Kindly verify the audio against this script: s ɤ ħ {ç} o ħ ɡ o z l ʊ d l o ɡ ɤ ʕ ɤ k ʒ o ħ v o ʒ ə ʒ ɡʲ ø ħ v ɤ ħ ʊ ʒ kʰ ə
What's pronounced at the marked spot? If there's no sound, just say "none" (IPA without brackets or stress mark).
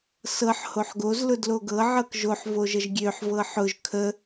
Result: h